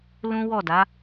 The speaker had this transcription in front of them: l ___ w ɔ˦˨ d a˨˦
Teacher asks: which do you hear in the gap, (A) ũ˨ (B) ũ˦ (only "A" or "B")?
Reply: B